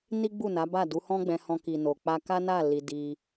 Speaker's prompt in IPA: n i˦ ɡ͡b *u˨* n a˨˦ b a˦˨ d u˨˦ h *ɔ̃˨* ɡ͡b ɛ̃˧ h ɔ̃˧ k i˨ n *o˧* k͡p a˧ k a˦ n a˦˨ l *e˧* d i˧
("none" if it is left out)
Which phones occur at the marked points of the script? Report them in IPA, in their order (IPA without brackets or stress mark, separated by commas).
u˦˨, ɔ̃˦, o˨, i˧